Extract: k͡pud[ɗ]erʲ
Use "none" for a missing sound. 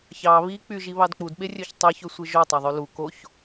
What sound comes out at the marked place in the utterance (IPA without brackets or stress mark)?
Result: ɓ